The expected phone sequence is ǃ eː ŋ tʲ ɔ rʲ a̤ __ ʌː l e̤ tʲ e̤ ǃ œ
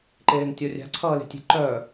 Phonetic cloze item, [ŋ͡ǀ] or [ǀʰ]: ǀʰ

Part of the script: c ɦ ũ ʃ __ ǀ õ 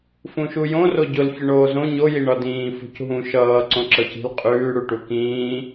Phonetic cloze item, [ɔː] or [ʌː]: ʌː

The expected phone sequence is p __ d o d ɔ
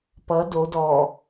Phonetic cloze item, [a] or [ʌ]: ʌ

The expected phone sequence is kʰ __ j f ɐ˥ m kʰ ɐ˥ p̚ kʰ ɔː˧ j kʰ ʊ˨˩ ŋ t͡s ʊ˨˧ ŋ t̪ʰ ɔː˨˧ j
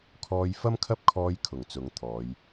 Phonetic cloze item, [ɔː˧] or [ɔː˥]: ɔː˧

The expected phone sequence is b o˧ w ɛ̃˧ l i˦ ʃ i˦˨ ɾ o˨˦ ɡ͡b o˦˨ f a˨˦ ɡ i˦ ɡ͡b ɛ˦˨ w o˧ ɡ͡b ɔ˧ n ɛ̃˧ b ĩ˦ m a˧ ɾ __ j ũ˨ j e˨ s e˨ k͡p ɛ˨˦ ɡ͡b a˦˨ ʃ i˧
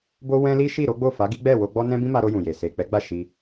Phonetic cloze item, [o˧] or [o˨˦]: o˧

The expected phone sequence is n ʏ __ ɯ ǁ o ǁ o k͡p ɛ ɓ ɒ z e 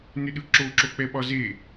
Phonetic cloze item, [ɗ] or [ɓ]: ɗ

